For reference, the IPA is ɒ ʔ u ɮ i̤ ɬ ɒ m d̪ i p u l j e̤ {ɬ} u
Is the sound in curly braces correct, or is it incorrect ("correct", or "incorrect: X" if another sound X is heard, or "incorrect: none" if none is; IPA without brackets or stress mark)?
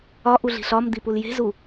incorrect: z